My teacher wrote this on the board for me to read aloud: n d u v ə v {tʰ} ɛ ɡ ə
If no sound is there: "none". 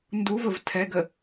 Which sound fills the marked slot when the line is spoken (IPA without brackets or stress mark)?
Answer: tʰ